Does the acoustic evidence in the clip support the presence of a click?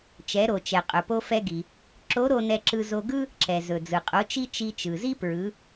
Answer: yes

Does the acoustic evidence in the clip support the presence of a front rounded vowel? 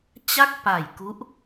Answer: no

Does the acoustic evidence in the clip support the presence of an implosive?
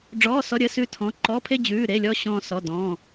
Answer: no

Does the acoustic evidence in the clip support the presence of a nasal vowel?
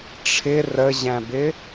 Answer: yes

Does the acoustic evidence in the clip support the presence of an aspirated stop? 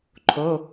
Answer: yes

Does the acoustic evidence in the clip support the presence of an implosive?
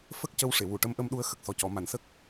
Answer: yes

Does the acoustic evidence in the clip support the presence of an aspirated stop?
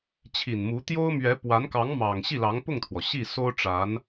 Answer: yes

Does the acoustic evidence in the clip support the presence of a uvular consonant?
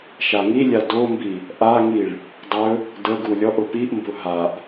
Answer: no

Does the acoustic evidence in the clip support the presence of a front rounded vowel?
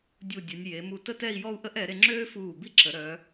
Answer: yes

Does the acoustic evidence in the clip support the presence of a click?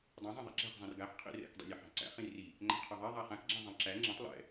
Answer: yes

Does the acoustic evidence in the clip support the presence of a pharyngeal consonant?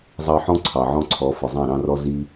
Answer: yes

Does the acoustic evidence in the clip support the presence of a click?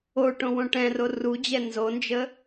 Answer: no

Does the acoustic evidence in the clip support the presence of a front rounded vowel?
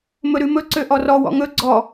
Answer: yes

